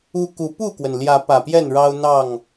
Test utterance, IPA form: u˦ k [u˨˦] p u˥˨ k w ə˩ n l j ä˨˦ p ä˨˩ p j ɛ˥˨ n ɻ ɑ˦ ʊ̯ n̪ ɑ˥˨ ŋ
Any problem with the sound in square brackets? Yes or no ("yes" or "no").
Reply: no